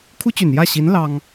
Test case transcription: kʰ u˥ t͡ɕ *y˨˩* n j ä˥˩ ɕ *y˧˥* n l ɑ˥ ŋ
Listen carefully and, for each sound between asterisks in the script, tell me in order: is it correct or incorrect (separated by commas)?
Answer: correct, incorrect